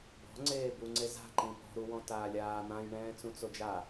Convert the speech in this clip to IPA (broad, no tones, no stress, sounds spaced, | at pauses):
b ɔ̤ ŋ͡ǀ eː b u ŋ͡ǀ e z a̤ ǃ ĩ p ɔ̤ ɾ u w ɔ̃ t aː lʲ aː n̪ ã j ɳ ɛ̃ː t͡s ũ t͡s o d͡ʒ a